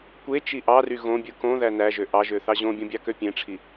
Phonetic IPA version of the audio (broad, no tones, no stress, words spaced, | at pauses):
kʷe t͡ʃiʔɑry ɣõbʲɯ kõ ðænæʒø ʔɑʒø θɑʑõbʲõ bʲɑkøpʲẽʈ͡ʂʰi